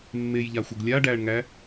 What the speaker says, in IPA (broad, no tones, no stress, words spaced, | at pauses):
mːejʎaxʷəɡ lʲa ɖæɳŋæ